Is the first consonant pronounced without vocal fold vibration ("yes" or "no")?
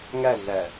no